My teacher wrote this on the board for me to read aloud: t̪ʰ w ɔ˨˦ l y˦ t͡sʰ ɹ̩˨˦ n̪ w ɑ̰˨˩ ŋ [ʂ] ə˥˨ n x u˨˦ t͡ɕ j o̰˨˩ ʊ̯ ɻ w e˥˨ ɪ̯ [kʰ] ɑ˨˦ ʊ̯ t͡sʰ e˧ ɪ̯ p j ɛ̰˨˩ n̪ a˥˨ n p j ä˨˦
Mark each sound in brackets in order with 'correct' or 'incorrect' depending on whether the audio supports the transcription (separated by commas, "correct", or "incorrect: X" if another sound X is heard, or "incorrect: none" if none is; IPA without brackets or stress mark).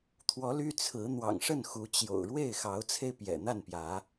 correct, incorrect: x